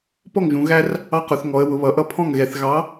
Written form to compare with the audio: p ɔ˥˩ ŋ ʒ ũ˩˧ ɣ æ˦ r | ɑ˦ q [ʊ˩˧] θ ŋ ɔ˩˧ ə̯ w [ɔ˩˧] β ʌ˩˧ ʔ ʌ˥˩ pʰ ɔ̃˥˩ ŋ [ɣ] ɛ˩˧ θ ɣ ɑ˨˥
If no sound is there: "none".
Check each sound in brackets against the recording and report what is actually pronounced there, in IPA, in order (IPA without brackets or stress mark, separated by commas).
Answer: ʊ˩˧, ʊ˩˧, ɣ